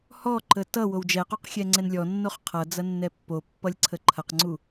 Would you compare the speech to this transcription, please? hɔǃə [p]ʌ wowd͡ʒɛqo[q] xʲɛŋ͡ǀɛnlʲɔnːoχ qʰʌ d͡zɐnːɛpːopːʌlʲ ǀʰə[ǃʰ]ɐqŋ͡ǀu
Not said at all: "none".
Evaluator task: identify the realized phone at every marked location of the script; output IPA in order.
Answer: t, q, ǃʰ

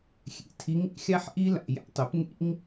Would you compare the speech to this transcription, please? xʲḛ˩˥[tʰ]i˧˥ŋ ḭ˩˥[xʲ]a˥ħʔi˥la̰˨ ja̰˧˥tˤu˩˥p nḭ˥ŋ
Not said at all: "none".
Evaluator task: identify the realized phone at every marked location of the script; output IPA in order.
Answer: tʰ, xʲ

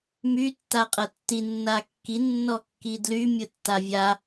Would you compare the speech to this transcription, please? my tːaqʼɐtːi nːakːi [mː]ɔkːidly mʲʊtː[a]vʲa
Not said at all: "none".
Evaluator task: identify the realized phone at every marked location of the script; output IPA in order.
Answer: nː, a

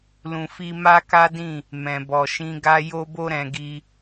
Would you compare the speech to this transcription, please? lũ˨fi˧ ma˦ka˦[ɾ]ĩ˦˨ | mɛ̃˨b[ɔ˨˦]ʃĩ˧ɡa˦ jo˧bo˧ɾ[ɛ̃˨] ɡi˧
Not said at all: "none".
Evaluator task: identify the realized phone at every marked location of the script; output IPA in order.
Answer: d, ɔ˨, ɛ̃˨

